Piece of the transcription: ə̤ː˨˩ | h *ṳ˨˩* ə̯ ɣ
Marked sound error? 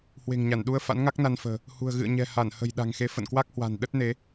no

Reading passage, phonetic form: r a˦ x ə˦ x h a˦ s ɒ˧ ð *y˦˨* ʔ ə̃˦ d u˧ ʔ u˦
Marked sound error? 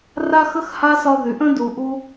yes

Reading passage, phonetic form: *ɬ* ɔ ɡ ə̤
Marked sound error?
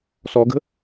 yes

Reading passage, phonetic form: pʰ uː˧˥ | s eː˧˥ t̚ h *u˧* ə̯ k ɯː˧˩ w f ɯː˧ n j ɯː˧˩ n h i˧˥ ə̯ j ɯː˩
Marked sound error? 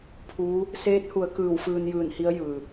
yes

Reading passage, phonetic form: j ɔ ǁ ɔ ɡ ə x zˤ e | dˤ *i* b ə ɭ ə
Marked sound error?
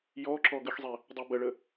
yes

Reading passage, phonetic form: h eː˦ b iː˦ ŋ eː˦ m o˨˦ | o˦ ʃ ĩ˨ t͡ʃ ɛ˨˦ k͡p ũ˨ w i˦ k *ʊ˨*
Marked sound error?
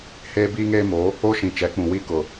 no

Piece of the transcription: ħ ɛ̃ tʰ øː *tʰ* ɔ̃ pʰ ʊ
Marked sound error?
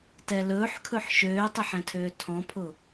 no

